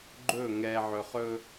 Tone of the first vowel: falling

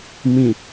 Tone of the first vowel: low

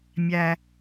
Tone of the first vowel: low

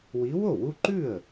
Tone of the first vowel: rising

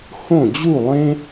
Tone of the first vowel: falling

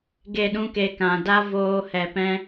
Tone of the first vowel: falling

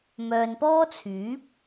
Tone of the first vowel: low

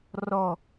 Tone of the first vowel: falling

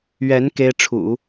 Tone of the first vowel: rising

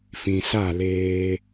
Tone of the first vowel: low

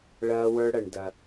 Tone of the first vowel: high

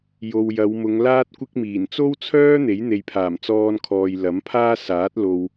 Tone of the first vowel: low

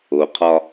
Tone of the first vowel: low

